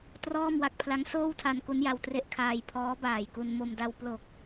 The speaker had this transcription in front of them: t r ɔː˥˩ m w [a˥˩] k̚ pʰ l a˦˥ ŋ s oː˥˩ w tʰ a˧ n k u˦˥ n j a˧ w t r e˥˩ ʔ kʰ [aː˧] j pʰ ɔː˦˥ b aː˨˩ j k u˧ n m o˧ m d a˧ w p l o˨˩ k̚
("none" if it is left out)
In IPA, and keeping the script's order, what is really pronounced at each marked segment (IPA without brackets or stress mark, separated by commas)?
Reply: a˦˥, aː˧